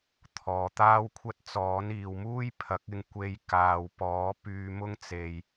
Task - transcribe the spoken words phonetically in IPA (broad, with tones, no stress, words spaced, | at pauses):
t̪ʰɔː˧ t̪aː˥wkʷʰɐ˥t̚ t͡sɔː˨˥niː˨w muː˥jpʰɐ˨˥k̚ɪ˧ŋ kʷe˧jkaː˨wpɔː˨˥ pyː˧mʊ˥ŋ t͡se˧j